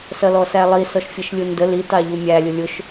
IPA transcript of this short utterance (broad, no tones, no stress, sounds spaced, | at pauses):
s ʌ l ɔ s æ lˠ i s ɔ ʃ fʲ ʌ ʃ lʲ u n d ə l i t ɑ ʎ u mʲ æ lʲ ʊ lʲ ʊ ʃ